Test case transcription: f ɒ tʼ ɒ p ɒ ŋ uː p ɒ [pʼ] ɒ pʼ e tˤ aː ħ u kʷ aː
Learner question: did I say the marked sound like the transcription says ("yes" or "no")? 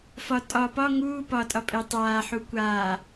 no